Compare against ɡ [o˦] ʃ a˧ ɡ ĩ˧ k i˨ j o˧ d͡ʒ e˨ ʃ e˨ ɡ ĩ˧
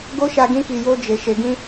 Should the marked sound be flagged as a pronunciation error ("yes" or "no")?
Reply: no